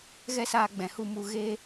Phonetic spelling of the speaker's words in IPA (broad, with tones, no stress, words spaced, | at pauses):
ɣɛ˦saː˧ ɡ͡bɛ̃˨hu˦˨mu˦˨ ɣe˦